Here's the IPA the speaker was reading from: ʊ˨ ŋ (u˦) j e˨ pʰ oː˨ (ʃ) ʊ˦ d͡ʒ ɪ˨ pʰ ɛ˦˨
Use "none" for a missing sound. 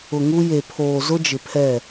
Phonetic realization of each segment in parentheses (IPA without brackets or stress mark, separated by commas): u˦, z